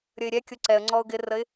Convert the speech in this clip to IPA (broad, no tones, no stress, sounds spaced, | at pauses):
ɾʲ ə ɪ̯ ɾʲ ɛ kʲ ʊ ǀ ɛ ə̯ ŋ͡ǀ ɔ ʊ̯ ɡ ɪ r ə ɪ̯